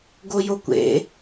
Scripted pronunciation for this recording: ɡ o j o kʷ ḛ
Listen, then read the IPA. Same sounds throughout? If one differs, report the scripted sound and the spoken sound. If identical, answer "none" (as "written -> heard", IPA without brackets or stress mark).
none